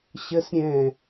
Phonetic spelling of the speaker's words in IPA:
ɕ ə s ɾʲ ɛ̃

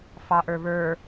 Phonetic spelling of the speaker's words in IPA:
f ɑ ʔ ə˞ β ə˞

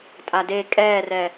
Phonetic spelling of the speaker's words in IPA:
tʼ a d e kʼ ɛː r ɛ

